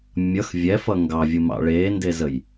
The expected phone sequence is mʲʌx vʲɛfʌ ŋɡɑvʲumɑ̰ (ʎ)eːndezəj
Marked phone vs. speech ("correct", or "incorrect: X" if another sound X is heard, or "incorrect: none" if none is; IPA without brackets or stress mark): incorrect: ɭ